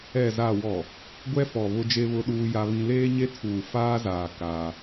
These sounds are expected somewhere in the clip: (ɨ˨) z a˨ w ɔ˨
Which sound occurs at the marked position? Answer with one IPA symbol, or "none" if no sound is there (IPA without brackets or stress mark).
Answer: ɛ˨